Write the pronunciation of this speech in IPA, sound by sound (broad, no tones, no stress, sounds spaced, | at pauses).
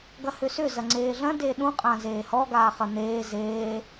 ɡ ɐ h ʏ s ʏ z ɐ ŋ͡ǀ eː ɮ ɐ̃ d e ɗ ũ qʼ ã z eː h ɔ ɡ aː χ ɐ n̪ eː z eː